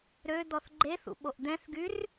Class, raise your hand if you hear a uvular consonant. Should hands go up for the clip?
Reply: no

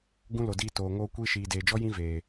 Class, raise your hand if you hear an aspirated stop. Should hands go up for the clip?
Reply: no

